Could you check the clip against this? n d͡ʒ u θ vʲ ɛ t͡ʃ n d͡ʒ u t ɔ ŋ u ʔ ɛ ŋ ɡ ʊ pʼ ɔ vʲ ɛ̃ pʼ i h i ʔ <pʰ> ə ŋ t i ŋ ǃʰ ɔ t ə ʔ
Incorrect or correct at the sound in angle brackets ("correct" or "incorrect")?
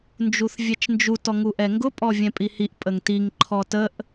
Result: incorrect